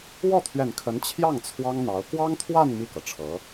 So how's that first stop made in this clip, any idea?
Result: aspirated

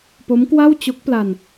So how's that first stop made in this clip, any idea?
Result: plain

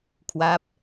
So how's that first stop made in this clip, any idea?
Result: aspirated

